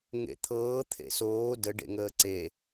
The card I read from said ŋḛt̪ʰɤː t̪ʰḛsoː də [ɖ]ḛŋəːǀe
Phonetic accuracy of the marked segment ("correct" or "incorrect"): correct